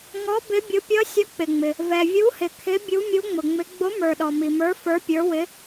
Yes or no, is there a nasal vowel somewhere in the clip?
no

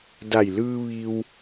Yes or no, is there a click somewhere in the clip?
no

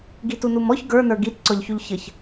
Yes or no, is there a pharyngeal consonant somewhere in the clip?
no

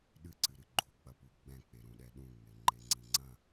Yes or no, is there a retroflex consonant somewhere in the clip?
no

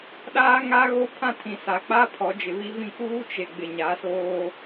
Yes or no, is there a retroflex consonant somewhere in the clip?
no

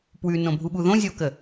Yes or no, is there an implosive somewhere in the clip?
yes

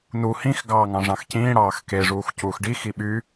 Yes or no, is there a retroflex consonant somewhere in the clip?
yes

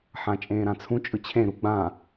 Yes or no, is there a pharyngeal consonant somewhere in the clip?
yes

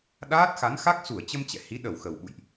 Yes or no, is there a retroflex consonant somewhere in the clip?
no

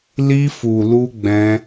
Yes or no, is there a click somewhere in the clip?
no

